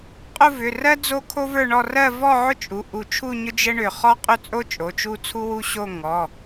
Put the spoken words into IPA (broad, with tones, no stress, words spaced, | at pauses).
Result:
qʼʊ˥˧vʏ˩˧˩rɜ˥ d͡zo˥kʰo˥və˞˥˧ɳɔ˥˧ rɜ˥˧vɔ˥˧ʕʊ˥t͡ʃʼu˩˧˩ ʔu˧˩t͡ʃʰu˥˧ɲʊ˥ d͡ʒə˥ɳʏ˧˩ χɔ˥qʼʏ˥˧t͡sʼo˥ t͡ʃʼo˩˧˩t͡ʃu˥˧ t͡sʰu˥wu˥˧ ɕo˥˧ ŋɔ˩˧˩